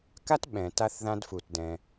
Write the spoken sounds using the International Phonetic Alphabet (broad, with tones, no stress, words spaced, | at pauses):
ka˦tɓɛ̃˨ ta˦θðã˦dfu˧tdɛ̃˧